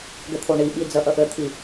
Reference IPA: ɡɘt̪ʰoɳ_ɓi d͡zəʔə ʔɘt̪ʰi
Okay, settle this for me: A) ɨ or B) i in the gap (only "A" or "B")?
B